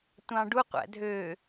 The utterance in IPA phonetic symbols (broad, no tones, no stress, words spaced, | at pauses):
tʷɑ̃ɖuqʷæ̰ dʱø